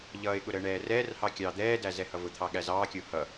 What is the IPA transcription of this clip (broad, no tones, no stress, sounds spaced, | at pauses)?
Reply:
ʎ ʌː ɪ̯ ɠ ʊ ɾ əː ɳ ɛː r ɛː r h ɑ kʲ ɑː d̪ ɛː d æ z ɛ h ʌ v ʊ t̪ʰ ɑ ɠ æ z ɑː kʲ ʊː h ʌ